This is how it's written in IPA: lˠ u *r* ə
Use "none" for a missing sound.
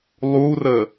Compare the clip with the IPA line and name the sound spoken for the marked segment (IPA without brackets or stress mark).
r